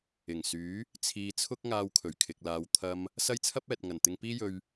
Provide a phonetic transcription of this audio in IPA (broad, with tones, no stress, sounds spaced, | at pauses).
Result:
ɪ˨˩ ŋ s yː˨˥ | t͡sʰ iː˧ t͡sʰ ʊ˥ k̚ ŋ aː˧ w kʰ ɵ˨˩ ɥ kʰ ɪ˨ k̚ l aː˨˧ w t̪ʰ ɐ˧ m | s ɐ˥ j t͡sʰ ɐ˥ p̚ ɛː˨ t̚ ŋ ɐ˨˩ n t̪ ɪ˧ ŋ p iː˥ j ɵ˧ ɥ